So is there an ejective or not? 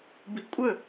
yes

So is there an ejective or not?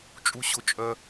yes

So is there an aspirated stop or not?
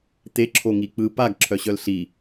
yes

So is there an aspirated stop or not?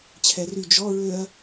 yes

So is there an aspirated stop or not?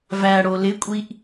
no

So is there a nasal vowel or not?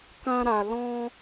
yes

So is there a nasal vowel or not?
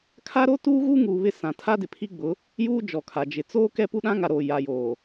yes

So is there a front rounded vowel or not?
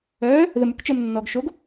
yes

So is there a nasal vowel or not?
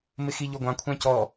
yes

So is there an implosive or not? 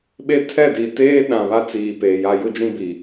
yes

